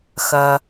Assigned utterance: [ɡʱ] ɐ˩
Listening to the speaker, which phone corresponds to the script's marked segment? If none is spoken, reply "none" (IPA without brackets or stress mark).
x